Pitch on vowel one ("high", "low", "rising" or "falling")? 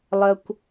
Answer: low